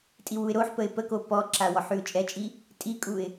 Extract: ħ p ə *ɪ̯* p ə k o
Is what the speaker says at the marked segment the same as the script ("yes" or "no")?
yes